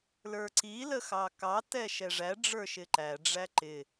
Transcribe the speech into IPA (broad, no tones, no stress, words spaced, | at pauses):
lə˞ǀi ləxɑkɑ tɛʃɛʐæ ɖ͡ʐə˞ʃɪǃæ ɖ͡ʐæǃɪ